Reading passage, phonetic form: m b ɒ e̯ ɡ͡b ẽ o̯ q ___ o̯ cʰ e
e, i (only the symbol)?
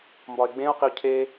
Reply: i